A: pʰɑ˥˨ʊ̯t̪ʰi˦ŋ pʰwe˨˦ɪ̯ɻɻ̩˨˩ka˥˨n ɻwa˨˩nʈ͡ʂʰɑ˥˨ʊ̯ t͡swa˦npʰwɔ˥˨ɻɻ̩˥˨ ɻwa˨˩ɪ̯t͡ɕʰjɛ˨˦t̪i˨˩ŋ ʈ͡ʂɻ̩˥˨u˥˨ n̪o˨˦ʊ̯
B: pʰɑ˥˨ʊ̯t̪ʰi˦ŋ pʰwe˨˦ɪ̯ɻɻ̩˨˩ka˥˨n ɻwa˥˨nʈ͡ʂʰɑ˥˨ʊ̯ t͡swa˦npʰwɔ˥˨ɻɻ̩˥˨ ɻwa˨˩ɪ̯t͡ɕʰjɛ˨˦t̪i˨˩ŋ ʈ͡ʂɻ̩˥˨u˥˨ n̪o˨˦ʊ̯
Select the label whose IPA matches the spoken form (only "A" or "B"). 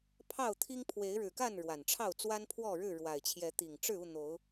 A